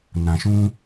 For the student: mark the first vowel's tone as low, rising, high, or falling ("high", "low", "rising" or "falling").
low